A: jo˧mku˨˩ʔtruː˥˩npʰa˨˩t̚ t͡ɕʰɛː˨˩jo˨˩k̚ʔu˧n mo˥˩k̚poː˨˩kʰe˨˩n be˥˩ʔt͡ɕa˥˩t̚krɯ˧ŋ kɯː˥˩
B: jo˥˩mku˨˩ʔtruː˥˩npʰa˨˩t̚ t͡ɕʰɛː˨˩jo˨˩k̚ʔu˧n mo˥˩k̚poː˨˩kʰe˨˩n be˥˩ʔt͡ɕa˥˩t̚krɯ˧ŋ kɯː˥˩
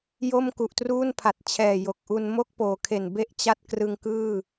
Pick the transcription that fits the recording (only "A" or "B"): B